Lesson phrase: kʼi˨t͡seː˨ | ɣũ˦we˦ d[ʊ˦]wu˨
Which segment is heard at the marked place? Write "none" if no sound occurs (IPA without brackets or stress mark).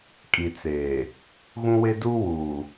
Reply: u˦